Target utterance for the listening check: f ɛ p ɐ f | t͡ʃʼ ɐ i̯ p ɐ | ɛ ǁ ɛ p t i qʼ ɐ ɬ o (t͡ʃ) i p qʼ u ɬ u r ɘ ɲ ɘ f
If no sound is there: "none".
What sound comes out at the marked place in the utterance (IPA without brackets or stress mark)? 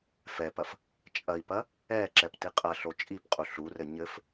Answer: t͡ʃʼ